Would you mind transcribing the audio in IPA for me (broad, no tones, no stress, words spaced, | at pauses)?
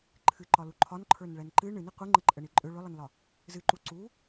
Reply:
ǃʰɨǃɒlu ǃʰɒnǃʰə˞nɭɛn ǃɨ ɳɨni qʷɨŋ͡ǃəǃʼəɳi ǃʼʏ ɭʏlˠənlɒ | zɨǃu ǀu